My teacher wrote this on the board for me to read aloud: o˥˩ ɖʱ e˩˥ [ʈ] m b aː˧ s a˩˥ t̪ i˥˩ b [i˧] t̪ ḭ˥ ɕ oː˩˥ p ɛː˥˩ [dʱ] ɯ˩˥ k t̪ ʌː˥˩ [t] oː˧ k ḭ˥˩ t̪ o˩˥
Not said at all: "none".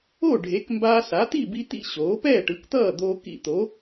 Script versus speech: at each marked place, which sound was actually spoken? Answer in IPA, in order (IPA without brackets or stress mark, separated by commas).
k, i˧, ʈ, d̪